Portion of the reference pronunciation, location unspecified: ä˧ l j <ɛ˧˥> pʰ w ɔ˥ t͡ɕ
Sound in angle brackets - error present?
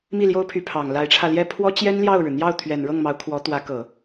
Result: yes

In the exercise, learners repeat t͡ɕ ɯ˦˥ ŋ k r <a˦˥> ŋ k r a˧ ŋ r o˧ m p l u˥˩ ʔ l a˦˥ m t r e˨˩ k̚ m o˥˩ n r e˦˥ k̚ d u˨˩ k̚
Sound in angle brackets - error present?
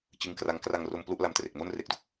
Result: no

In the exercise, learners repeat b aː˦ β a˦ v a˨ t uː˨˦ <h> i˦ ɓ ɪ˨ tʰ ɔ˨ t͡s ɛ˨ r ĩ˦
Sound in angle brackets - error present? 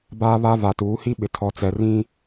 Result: no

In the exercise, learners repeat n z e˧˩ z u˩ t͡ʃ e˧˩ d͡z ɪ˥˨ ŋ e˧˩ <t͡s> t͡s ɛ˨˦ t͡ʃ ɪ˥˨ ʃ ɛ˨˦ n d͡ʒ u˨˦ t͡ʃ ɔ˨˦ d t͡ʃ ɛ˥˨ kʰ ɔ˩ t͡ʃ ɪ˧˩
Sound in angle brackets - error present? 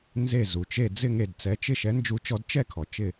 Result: yes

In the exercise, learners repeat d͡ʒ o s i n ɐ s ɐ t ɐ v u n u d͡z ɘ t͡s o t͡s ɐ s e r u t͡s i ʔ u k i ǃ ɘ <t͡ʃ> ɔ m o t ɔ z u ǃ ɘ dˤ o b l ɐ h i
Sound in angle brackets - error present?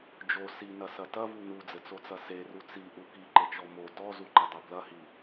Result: no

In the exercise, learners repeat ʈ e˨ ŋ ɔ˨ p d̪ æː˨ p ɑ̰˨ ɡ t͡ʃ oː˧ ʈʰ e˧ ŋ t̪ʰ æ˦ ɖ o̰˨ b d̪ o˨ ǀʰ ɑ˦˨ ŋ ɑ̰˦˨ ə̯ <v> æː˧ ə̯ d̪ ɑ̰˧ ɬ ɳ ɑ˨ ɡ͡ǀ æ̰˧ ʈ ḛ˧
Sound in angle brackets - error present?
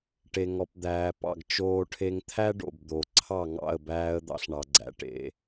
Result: yes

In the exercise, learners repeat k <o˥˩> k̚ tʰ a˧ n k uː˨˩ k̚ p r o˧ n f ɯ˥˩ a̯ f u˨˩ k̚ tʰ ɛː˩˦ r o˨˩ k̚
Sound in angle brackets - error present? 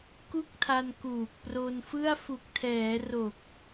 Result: yes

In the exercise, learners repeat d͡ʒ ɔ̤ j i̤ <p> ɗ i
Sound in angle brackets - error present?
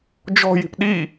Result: no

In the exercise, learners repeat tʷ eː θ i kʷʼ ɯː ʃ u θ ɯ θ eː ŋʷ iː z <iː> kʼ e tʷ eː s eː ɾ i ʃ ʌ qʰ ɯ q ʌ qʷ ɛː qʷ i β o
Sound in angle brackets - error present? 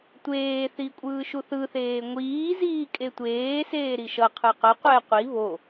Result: no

